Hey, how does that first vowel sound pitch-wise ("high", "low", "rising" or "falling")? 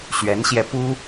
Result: rising